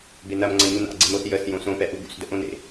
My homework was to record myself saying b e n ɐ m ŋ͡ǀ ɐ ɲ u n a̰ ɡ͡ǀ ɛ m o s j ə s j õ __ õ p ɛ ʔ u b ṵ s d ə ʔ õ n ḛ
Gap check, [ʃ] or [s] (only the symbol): s